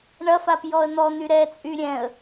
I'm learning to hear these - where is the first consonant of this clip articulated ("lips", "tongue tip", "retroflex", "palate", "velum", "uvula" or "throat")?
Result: retroflex